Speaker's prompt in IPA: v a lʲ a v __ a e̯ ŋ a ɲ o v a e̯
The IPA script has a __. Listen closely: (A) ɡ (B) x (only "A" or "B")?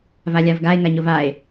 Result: A